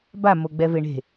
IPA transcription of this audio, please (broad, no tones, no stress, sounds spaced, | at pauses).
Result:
b a m o ɡ͡b ɛ v e ɳ e̤